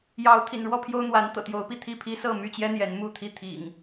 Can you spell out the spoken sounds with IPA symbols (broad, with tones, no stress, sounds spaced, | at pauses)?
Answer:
j ɑ˨˦ ʊ̯ t̪ʰ ḭ˨˩ n ɻ w ɔ˥˨ pʰ j o˦ ʊ̯ n̪ w a˨˦ n t̪ ɤ̰˨˩ t̪ j o˨˦ ʊ̯ p i˥˨ t̪ʰ i˥˨ pʰ i˦ s ɤ˥˨ m y˥˨ t͡ɕ j ɛ˦ n̪ j ɛ˨˦ n m u˥˨ t̪ʰ i˥˨ t̪ʰ ḭ˨˩ ŋ